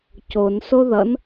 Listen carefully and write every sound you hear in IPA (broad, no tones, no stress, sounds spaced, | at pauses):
c o n s o ð ʌ n